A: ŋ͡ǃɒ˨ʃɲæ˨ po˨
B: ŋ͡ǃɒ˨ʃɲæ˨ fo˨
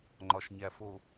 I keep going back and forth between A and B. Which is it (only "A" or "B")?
B